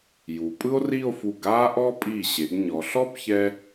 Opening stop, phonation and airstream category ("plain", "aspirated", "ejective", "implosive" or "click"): ejective